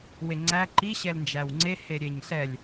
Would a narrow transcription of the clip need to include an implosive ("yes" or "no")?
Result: no